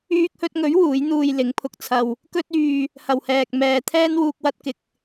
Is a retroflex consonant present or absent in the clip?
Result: absent